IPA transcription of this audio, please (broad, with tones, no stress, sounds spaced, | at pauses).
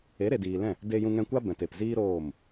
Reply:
e˨˦ ɾ e˨ d iː˨ l ɛ̃˦˨ | d e˧ j ũ˧ ŋ ɛ̃˧ kʷ a˦ b ɛ̃˨ t e˨ p z iː˦ ɾ oː˦˨ m